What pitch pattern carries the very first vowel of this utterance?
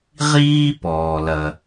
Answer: high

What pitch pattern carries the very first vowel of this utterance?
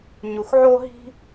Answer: low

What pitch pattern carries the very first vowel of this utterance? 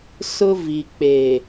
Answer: high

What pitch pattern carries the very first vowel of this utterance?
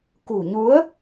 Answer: low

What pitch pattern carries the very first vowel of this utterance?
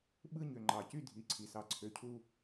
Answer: falling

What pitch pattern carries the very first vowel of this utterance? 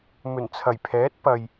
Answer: low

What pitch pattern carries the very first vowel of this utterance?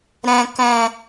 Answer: low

